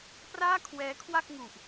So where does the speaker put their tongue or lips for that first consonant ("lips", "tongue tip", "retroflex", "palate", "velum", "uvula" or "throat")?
lips